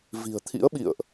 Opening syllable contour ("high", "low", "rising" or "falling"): low